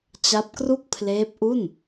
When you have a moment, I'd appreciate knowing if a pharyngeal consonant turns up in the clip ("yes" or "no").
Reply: no